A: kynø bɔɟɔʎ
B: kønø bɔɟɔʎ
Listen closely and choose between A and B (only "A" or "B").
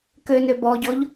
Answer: B